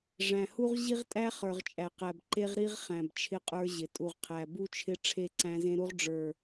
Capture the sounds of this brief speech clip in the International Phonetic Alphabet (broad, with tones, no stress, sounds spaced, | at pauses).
ʐ æ̃˨ h u˦ ʁ ʑ i˦ ʁ tʼ æ˦ χ ə˞˨ ʁ t͡ʃʼ æ˨ q æ˨ b ǃ e˦ ʁ ɾ i˦ ʁ χ æ̃˨ b t͡ʃʰ ɪ˦ qʼ ə˞˦ ʑ ɪ˨ tʼ u˨ ʁ qʰ æ˨ b u˦ t͡ʃʰ ɪ˦ ʈ͡ʂʰ e˦ ǀ æ̃˦ z ẽ˦ ɾ u˦ ʁ ɖ͡ʐ ə˞˨